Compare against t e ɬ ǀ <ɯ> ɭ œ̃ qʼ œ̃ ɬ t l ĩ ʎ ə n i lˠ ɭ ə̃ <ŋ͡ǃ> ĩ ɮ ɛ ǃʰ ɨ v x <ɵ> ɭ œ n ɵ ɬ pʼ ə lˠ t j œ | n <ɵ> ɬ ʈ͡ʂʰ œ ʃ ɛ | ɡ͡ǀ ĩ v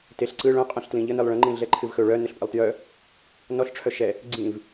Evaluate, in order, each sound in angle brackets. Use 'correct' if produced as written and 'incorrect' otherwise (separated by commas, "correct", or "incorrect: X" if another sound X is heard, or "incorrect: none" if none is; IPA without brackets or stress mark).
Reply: correct, correct, correct, incorrect: ɔ